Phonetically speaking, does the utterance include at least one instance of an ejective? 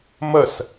no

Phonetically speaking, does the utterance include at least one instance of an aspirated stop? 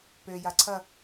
yes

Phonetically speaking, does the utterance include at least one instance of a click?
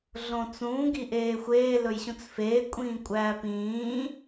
no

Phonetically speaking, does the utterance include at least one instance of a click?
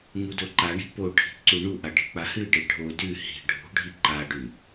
yes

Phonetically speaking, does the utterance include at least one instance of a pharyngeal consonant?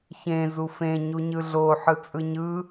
yes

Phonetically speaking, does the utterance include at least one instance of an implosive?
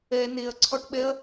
yes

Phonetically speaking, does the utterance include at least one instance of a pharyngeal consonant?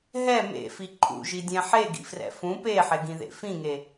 yes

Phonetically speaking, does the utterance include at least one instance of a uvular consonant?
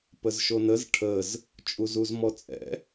no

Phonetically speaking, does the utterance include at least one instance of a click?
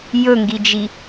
no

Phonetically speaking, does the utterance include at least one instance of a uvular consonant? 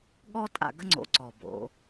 no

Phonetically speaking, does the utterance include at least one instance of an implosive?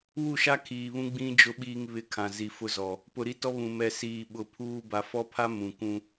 yes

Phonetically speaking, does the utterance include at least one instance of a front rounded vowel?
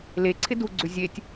yes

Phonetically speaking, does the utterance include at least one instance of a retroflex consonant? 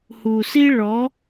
yes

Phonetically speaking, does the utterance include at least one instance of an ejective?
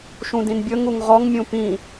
no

